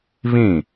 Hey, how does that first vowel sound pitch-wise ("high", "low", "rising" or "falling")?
falling